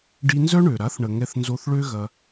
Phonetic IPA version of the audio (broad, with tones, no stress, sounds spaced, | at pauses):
ɖ i˧ n z œ˦ ɳ ø˨ ɾ a˨˦ θ ɳ ə˨ ŋ ɛ˧ θ n z o˧ θ ɭ ø˦ ɣ ɐ˧